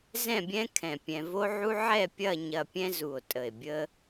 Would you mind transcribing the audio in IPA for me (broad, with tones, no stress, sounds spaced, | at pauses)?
z ɛ̃˥˧ bʲ ɛ̃˥ kʰ ɛ̃˧˩ pʲ ɛ̃˧ v o˥ ʕ u˥ ʕ ɛ˥˧ pʲ ɐ˥˧ ɲ ɐ˧ pʲ ɛ̃˥ z u˧˩ o̯ tʼ ə˧˩ e̯ bʲ ə˥